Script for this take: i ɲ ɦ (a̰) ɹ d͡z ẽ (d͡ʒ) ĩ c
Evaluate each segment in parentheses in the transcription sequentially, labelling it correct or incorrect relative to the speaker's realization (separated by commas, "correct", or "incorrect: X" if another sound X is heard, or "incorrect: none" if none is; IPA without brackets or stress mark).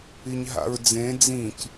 correct, incorrect: d͡z